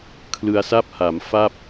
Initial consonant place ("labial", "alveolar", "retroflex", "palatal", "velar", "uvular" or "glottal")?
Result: velar